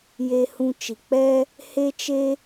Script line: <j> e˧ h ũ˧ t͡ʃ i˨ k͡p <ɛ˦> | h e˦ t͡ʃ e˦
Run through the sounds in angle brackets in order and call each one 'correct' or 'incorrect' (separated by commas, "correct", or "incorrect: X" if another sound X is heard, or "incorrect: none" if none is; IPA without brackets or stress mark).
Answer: correct, correct